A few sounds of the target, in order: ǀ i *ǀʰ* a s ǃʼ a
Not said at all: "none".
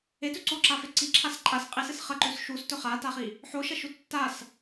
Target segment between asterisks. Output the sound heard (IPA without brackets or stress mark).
ǁʰ